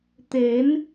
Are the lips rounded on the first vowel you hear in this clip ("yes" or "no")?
no